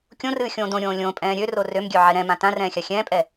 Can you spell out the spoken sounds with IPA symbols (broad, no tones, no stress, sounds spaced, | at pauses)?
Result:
kʲ õ r ɨː xʲ õː d õ ɾʲ õː lʲ õ pʼ ɛ̃ː ɾʲ ø r o r ø m ɡʲ ø ʕ ɛ ɾ ɛ̃ m ã t ã r ɛ̃ː xʲ a xʲ ɛ̃ː pʼ ɛ